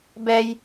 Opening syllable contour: high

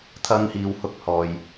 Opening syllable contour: high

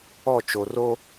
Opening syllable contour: falling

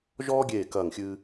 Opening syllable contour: high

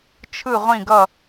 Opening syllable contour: falling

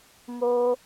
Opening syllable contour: high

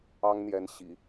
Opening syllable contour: high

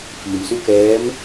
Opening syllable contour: low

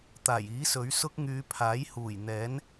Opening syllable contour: low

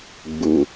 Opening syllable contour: low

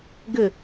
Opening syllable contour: falling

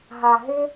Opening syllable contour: low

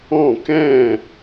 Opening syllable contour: falling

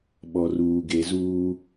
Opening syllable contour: low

